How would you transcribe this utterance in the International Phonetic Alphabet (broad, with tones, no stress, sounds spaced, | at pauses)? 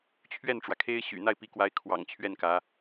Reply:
t͡ɕʰ ɥ ɛ˥˩ n ʈ͡ʂ w ä˩ kʰ e˥ ɪ̯ ɕ y̰˨˩ n̪ a˥˩ ɪ̯ p i˧˥ k w a˧˥ ɪ̯ kʰ w ɑ̰˨˩ ŋ t͡ɕʰ ɥ ɛ˥˩ n k ä˧˥